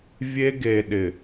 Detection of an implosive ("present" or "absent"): present